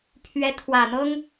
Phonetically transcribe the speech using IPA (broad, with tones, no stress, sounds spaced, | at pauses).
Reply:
pʰ ɥ ɛ˧˥ t̪ʰ w ä˨˩ n̪ ɤ˥ ŋ